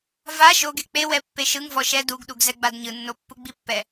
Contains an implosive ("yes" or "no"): yes